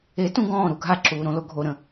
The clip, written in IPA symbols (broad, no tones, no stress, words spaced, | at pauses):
etũ ɡɔ̃ːɾu ɡʱaǁuːɾõlo ɡʱoɾə̃